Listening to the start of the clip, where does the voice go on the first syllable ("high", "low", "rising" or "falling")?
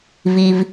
low